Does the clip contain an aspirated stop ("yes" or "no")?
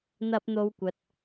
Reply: no